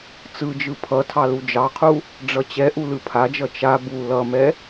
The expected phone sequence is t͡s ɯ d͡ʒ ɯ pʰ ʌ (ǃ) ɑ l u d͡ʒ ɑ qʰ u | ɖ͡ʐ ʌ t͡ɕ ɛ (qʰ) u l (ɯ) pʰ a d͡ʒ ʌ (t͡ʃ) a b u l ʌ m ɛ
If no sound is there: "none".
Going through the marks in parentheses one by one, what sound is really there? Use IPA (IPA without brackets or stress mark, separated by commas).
tʰ, ʔ, ɯ, t͡ʃ